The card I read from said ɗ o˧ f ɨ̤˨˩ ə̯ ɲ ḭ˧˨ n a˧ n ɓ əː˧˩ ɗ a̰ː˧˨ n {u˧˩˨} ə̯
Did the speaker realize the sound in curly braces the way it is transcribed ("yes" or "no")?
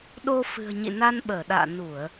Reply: yes